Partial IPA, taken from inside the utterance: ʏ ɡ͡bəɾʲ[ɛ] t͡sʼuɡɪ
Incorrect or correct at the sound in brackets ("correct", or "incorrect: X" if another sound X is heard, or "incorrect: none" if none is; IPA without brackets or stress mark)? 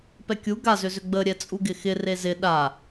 correct